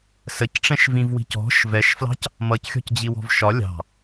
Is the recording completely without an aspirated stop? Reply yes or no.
yes